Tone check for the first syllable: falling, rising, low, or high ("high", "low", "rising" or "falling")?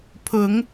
rising